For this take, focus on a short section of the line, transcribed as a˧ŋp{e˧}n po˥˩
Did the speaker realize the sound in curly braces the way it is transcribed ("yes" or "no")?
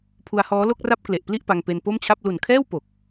yes